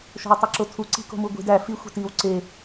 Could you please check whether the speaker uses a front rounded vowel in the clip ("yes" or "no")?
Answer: no